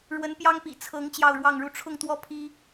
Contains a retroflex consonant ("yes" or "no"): yes